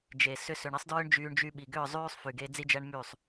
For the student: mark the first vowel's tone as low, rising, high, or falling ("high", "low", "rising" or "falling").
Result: low